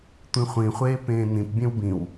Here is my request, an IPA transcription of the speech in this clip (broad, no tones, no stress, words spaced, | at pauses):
tʷĩχʷĩχʷeː pẽːnĩpbʲẽw bĩw